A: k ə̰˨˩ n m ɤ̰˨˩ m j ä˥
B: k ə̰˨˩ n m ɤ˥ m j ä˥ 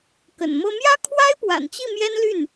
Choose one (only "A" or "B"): B